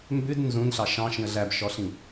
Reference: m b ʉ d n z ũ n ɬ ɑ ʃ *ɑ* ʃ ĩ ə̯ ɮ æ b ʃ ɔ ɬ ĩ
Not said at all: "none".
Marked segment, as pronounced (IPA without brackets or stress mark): ɑ̃